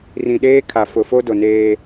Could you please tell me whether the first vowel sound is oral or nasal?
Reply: nasal